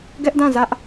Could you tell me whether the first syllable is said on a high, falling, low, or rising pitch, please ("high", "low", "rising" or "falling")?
high